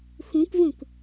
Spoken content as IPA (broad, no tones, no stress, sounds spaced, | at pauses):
x ũ k v ũ k